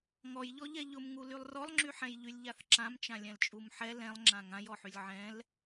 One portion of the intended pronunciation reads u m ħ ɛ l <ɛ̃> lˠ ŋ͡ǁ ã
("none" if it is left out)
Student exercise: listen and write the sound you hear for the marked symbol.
ɛ̃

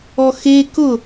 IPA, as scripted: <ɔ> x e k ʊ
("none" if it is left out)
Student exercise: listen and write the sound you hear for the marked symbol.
ɔ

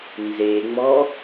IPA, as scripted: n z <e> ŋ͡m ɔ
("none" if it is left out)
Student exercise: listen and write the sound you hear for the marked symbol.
e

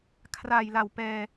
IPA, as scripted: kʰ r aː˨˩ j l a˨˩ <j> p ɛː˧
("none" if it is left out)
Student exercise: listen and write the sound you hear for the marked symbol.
w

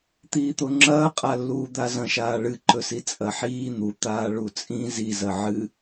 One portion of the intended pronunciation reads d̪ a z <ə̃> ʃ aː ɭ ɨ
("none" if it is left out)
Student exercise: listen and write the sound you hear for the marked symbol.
ɐ̃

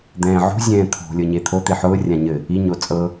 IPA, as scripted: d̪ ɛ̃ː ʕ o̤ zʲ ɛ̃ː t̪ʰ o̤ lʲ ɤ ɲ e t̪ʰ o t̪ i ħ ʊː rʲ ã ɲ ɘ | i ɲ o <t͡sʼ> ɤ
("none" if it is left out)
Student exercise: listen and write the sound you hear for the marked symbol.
t͡sʼ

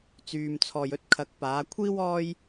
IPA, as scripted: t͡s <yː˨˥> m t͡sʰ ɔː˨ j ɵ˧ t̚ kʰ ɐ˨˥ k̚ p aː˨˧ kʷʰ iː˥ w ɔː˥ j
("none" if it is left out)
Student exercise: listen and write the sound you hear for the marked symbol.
yː˨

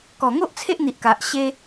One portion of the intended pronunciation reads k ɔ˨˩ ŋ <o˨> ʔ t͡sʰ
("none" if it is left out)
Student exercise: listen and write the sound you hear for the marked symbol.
o˦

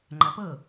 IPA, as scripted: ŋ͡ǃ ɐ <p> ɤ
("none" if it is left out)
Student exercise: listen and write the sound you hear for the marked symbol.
p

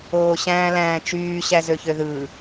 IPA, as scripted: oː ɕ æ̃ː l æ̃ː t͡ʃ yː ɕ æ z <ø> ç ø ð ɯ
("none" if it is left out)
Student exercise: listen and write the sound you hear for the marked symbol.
ø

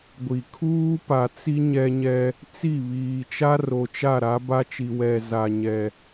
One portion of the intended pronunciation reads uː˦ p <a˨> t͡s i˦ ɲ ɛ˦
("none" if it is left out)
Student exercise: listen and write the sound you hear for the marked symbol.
a˨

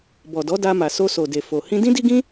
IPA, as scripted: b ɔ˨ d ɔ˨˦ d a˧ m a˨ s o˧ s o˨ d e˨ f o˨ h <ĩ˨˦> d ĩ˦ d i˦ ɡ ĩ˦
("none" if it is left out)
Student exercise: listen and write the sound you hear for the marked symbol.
ĩ˧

